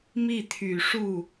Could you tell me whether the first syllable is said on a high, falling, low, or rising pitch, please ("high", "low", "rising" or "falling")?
falling